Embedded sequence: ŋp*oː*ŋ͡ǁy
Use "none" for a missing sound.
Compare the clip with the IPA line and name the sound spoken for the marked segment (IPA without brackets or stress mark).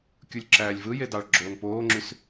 oː